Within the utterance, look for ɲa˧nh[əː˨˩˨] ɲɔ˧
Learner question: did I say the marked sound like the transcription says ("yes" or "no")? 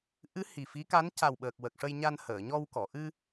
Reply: yes